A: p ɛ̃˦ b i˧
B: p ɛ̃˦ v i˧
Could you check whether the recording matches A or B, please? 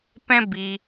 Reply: A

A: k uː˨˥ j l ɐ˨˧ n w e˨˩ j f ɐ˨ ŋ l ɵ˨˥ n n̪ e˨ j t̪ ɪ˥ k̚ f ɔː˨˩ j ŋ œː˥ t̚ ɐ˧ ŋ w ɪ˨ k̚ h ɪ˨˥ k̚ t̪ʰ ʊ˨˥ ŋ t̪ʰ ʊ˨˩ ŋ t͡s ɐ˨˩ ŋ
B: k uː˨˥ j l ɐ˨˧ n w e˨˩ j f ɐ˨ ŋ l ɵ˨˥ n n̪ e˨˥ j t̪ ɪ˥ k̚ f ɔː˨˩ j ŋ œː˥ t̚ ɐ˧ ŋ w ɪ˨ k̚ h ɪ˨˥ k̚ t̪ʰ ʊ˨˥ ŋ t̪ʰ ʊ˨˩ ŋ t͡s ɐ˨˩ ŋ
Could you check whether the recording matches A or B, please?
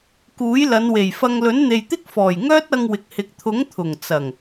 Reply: A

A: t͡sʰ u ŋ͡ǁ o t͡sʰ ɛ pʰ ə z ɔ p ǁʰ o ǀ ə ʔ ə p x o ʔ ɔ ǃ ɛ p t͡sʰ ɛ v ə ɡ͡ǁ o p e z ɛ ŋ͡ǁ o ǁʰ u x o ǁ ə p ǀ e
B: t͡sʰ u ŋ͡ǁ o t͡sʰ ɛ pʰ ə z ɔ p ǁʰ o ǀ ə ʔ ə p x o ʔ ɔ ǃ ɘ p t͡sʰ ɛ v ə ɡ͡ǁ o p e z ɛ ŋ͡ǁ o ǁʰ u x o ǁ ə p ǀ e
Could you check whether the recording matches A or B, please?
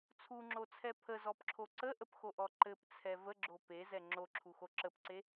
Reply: B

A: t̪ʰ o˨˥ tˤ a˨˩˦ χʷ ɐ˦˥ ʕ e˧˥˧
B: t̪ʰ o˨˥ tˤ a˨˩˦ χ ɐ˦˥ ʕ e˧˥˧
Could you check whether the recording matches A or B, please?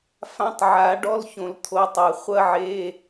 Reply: A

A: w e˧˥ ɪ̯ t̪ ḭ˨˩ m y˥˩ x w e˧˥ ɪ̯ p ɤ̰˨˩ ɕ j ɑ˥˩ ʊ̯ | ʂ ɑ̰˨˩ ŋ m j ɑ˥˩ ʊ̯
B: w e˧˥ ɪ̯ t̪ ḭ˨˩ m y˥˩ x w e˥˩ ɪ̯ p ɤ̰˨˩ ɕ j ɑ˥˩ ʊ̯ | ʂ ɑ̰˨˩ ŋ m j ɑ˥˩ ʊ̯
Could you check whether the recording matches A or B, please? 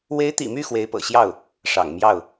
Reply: A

